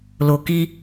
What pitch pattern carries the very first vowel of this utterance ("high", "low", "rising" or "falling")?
low